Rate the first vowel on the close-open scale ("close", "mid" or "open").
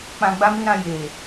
open